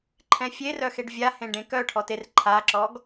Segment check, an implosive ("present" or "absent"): absent